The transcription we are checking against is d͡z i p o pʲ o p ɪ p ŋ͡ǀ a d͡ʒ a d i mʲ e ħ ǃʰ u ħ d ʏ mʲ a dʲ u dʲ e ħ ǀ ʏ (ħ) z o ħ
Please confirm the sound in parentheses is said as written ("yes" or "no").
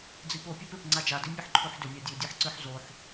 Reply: yes